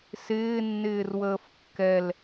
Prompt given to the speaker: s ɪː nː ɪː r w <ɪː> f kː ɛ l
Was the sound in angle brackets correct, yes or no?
no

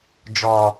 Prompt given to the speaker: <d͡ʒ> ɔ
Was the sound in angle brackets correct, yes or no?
yes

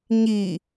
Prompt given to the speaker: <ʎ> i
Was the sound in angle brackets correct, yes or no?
no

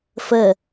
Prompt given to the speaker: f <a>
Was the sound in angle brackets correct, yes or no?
no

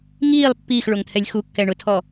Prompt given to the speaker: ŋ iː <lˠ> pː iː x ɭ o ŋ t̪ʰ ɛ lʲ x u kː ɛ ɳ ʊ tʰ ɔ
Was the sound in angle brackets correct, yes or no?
yes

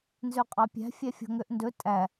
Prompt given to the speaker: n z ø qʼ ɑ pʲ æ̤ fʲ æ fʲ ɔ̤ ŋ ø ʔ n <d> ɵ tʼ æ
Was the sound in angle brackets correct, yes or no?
yes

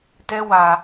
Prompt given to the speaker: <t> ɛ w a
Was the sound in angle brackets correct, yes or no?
yes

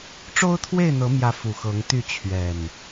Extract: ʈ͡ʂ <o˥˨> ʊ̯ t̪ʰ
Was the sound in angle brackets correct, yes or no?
no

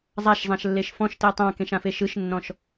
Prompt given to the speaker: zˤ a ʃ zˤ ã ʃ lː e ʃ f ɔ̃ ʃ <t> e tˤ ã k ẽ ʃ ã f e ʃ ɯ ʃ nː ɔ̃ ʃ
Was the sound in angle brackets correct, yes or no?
yes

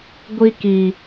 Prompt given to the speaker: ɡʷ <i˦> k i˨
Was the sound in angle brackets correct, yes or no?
yes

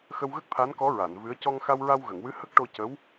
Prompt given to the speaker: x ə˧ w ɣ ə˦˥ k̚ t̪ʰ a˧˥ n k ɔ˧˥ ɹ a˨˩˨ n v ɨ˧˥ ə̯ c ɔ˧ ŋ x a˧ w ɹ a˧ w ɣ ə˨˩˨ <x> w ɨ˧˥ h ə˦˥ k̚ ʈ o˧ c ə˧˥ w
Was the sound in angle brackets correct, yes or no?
no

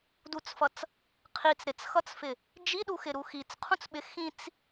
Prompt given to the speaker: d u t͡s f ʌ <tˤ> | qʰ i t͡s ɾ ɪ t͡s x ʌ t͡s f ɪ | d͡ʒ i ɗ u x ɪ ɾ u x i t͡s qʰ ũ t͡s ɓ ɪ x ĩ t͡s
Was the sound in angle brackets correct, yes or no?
no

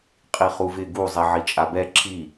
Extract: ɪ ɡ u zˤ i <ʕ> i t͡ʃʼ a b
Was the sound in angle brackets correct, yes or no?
yes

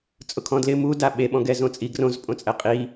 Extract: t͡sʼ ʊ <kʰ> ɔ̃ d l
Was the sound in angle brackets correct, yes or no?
yes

